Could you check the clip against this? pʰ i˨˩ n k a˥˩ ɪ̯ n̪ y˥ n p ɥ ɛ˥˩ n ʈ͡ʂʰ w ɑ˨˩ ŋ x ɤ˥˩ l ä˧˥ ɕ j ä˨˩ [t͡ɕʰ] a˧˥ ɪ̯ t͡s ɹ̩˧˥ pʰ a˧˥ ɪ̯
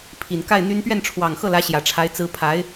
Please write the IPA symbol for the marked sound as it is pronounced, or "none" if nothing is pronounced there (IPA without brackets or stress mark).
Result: ʈ͡ʂʰ